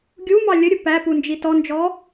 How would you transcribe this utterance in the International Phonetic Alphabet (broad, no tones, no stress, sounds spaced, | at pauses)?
ɡʲ u m ɑ lʲ ə ɾʲ ʊ p æ p u n d͡ʒ i t ɔ n d͡ʒ ɔ